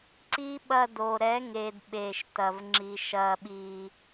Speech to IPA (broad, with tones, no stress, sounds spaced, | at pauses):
ǀ i˦ ɓ ɐ˧ d o˨ ɾ ɛ˨˦ ŋ e˨ d ɓ e˨ ʃ t ɐ˨ v ŋ͡ǁ i˨ ʃ ɐ˨ ɓ i˨